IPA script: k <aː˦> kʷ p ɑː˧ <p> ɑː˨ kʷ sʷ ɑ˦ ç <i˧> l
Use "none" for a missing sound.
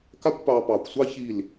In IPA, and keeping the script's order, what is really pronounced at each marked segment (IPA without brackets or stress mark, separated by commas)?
a˦, p, i˦˨